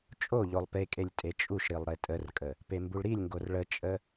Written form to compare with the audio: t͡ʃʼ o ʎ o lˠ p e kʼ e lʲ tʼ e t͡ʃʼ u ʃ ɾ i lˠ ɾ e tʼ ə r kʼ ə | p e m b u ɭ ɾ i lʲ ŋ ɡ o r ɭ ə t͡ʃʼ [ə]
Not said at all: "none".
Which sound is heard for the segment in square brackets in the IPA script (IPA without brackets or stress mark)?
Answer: ə